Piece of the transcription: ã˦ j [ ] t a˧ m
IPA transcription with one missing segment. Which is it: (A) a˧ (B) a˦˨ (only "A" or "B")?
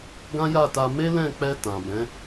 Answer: B